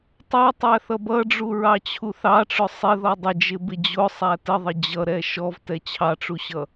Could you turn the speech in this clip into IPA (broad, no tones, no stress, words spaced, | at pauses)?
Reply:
tˤʌtˤæθʌ bʌɖ͡ʐuɹɑt͡ɕʰu θɑʈ͡ʂʊ sˤɪðɔ dˤɪd͡ʒɪbɪ d͡ʑʊsˤæ təðˤə d͡ʑʌɾɛ ʃɔvtɛ t͡ɕʰɑʈ͡ʂuɕʌ